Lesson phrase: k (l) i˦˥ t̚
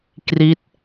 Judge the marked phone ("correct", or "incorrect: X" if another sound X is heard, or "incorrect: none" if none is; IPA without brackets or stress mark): incorrect: r